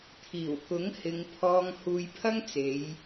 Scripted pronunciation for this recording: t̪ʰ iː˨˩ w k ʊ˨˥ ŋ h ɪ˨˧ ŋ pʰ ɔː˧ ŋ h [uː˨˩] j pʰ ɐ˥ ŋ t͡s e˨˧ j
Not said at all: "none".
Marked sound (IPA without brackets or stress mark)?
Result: uː˧